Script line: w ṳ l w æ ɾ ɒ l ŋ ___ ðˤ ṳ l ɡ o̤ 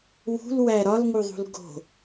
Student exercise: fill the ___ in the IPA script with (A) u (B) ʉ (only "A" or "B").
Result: A